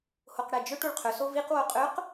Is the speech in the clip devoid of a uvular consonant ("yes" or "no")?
no